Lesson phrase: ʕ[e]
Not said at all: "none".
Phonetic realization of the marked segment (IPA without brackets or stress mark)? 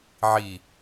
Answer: i